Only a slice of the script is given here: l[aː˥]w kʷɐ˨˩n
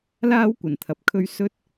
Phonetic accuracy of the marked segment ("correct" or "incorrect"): correct